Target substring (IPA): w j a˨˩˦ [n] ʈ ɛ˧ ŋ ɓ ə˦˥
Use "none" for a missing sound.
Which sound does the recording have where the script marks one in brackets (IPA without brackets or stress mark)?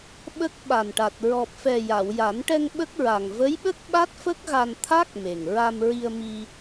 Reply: n